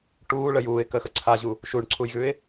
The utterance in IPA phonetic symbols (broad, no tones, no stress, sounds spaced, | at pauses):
ʈ uː ɭ ə j uː ɪ̯ k ə x ə ǀʰ a ʑ u | ʃ u ɳ ǀʰ u j ɣ ʉ ɪ̯